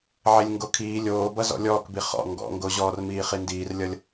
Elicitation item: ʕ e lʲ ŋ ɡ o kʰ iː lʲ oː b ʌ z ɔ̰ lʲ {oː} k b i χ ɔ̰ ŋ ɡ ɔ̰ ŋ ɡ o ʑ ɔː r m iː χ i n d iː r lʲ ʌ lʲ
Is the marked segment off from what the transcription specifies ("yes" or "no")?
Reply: yes